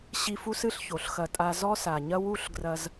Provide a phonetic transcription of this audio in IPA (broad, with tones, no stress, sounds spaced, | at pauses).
ɕ i˧ f u˦ s ɨ˦ ɬ ç o˨ ɬ x ɐ˧ tʼ a˧ z ɔ˦ s a˨ ɲ ɐ˦ w u˦ ɬ ɡ r ɐ˧ z